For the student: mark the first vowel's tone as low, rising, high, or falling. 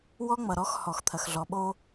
high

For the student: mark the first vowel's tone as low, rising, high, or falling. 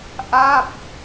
falling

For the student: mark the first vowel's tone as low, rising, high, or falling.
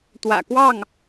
low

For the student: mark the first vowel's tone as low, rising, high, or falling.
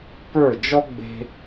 falling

